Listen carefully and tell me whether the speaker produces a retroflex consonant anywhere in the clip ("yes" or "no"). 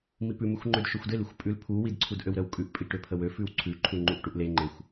yes